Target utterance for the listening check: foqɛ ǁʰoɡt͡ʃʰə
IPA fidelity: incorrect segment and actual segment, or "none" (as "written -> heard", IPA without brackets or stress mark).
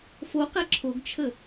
none